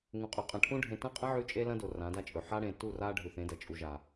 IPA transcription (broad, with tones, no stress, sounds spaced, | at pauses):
ŋ ũ˨ qʼ ʉ˨ qʼ ɐ̃˨ ʈʰ ũ˦ ɖʱ ẽ˨ t ɐ̃˦ qʼ ɐ̃˦ ʕ ʉ˦ t͡ʃʼ e˦ l ɐ̃˦ d o˨ r ã˨˦ d a˦ t͡ʃʼ ɵ˨ ħ a˦ ɽ ẽ˨ t u˦˨ r a˦ ɖʱ ʉ˨ θ ẽ˨˦ d ɐ˨ t͡ʃʼ u˨ ʒ a˨